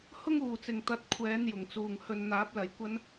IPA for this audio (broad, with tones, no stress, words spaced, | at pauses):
hʊ˥ŋuː˨˩t͡sɪ˨˩ŋ t̪ɐ˨˥t̚kʷʰɛː˨˧n jʊ˨˩ŋt͡suː˨ŋhɵ˧n n̪aː˨˥p̚lɐ˨˧jkʷɐ˥n